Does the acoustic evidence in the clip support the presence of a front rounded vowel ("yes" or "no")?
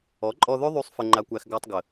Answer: yes